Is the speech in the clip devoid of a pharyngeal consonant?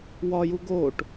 yes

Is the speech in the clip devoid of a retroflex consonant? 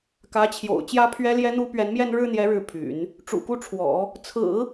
no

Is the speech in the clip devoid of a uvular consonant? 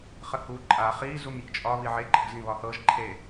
no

